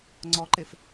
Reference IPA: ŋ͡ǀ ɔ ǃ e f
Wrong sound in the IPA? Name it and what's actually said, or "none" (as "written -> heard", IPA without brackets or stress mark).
none